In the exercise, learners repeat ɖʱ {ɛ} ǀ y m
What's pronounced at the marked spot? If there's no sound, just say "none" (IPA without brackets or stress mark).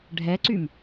ɛ